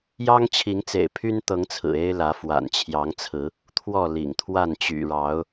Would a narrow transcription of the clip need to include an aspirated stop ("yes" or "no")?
yes